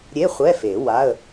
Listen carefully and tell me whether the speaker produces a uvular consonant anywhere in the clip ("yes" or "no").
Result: yes